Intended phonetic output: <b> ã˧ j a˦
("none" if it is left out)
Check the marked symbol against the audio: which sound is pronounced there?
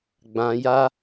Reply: ɡ͡b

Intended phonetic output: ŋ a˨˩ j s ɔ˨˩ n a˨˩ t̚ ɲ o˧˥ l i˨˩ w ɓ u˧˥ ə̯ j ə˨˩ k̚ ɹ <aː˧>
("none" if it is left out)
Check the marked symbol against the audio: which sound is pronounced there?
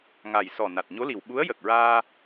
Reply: aː˧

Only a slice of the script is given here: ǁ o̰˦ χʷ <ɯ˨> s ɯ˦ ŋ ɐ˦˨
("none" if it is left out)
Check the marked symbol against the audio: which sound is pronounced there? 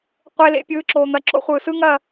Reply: ɯː˨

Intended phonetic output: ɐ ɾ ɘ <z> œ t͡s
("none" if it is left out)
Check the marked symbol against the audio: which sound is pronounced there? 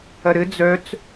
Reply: d͡z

